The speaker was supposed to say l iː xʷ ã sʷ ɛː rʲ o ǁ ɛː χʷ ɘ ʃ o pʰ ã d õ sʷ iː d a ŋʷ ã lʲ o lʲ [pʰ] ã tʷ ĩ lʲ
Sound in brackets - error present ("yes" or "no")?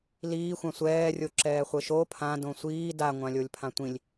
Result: no